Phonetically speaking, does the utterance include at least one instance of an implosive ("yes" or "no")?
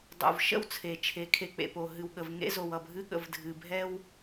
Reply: yes